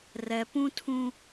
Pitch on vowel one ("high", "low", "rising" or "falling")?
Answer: low